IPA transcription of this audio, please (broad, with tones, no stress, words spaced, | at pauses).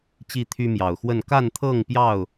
t͡ɕi˥˨t̪ʰy˦mjɑ˨˩ʊ̯xwə˥˨n ka˥˨nt̪ʰɤ˥˨ŋpjɑ˥˨ʊ̯